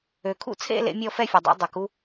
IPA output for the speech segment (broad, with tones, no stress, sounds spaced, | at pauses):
ø˩ kʰ ṵ˥˧ t͡sʰ ḛ˥˧ l ḛ˨˦ mʲ ɔ˥˧ f ɛ˥˧ fʲ ɛ˩ dˤ ḛ˨˦ dˤ o˩ k u˨˦